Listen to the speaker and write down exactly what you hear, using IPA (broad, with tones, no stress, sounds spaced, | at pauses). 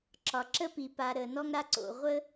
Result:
ǁ ɒ˩ ǁ ə˥ p i˩ p a˨ ɾ ə˩ n ɔ˥ ŋ ɾ a˦ ǀ o̰˩ ʁʷ ə˥